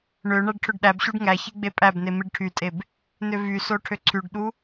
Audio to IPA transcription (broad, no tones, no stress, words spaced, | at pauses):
ɳø ɳæɖʈʰøɖɗæbɕuɖ ŋæ çiɡ͡bepʼæbne miɖʈʰytʼeb | nøvyso ʈʰøǀʰyɖɗu